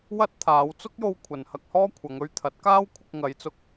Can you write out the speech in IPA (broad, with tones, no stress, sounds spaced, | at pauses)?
w ɐ˥ t̚ t̪ʰ aː˨˧ w t͡s ʊ˥ k̚ j o˧ w kʷʰ ɐ˨ n h ɐ˧ k̚ h ɔː˥ kʷʰ ɐ˨˧ ŋ ɵ˥ ɥ t̪ʰ ɐ˨˥ t̚ k aː˥ w kʷʰ ɪ˧ k̚ ŋ ɐ˨˧ j t͡s ʊ˧ k̚